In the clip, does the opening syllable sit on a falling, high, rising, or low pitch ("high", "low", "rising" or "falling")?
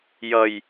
high